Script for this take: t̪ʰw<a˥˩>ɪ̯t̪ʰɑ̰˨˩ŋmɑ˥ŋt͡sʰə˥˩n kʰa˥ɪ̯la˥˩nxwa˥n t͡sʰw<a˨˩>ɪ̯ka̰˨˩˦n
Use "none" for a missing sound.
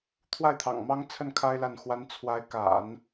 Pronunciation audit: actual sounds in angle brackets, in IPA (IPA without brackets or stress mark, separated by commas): a˥˩, a˧˥